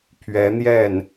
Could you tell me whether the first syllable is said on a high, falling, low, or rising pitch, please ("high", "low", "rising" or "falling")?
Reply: rising